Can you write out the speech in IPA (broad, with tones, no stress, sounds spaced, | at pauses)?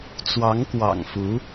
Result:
t͡s w ɑ˧˥ ŋ k w ɑ̰˨˩ ŋ f u˧˥